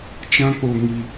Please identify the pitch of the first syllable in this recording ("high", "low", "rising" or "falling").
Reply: high